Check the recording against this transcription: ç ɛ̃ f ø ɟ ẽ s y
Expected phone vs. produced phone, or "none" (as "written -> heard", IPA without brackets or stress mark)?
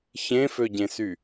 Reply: ɛ̃ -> ẽ